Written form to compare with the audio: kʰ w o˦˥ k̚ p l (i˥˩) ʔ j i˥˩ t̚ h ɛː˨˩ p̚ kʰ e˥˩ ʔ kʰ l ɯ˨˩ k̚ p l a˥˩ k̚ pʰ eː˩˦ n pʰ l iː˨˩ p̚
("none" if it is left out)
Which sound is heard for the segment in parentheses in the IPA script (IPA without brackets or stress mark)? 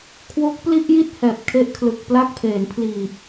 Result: i˥˩